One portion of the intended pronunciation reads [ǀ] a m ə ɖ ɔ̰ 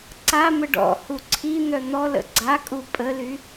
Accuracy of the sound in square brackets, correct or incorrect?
correct